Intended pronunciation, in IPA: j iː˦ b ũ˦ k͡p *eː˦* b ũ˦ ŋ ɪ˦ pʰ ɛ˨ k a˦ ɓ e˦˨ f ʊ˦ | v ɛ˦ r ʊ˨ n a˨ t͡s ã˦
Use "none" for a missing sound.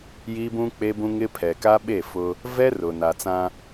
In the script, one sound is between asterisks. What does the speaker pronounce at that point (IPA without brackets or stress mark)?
e˦